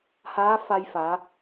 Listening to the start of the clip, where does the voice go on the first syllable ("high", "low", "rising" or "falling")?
rising